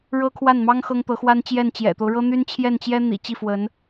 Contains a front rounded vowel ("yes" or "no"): yes